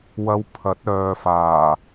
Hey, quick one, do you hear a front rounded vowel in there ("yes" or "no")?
yes